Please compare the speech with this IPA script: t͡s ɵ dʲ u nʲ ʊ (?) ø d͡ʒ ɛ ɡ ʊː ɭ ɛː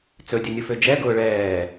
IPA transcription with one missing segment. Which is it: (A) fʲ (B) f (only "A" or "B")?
B